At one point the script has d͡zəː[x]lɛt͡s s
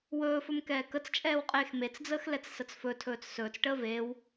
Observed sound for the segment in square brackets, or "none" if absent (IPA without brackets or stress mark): x